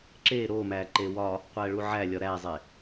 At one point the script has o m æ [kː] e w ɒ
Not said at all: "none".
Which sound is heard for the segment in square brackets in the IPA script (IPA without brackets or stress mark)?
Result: ǃ